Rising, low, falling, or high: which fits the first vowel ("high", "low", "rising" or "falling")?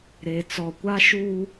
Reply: low